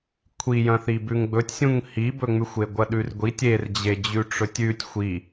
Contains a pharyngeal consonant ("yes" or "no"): no